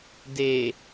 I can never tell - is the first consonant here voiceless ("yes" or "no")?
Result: no